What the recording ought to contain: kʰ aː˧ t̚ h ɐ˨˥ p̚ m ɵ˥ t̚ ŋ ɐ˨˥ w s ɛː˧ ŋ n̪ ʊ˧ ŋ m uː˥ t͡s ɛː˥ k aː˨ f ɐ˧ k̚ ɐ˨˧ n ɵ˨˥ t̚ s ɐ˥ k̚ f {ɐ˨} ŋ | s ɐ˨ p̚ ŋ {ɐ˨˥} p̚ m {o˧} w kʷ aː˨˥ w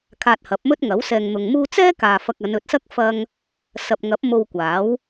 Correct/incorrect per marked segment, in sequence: incorrect, correct, correct

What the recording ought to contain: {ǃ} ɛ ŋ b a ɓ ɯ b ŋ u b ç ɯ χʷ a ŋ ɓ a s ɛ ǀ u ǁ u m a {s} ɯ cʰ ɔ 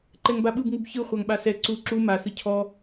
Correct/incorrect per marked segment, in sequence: correct, correct

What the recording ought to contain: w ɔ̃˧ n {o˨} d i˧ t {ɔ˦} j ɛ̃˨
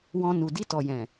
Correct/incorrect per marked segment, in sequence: incorrect, incorrect

